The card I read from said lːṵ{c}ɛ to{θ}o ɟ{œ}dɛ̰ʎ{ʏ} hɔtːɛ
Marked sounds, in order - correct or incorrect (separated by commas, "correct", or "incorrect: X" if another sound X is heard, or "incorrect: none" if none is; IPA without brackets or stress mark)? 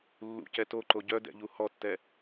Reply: correct, incorrect: ǃ, correct, incorrect: u